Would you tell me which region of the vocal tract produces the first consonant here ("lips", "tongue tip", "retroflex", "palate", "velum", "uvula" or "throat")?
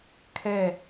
velum